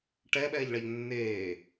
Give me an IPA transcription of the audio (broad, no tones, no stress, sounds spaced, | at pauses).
ʈ ɛ ɓ ɛː ʎ ɭ a ʎ nː eː